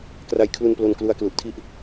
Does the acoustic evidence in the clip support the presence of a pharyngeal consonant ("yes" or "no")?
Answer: no